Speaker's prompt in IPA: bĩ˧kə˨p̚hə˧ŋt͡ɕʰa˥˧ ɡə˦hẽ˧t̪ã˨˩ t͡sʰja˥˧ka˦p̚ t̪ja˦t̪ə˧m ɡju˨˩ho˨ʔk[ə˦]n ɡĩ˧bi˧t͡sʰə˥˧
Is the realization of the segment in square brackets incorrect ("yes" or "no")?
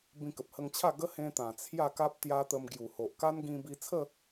yes